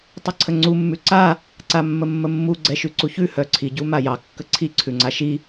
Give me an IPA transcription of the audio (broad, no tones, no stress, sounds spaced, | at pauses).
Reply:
tˤ ə ǀʰ ə ŋ͡ǀ u mː ʉ ǀ a | ǀ a mː ə mː ə mː u ɡ͡ǀ ɛ ʃ ʉ ǀ u ç ʉ h œ ǀʰ i ɟ u m a j ɑ kː ə ǀʰ i ǀʰ ʉ ŋ͡ǀ a ʃ i